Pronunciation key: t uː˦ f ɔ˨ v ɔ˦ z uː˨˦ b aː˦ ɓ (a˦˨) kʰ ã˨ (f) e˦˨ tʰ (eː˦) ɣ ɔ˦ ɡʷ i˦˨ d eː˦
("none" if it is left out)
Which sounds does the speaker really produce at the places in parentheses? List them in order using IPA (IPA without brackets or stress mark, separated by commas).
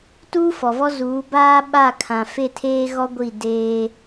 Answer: a˦˨, f, eː˦